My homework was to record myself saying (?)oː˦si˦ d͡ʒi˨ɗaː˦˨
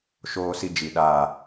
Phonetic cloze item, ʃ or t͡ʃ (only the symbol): ʃ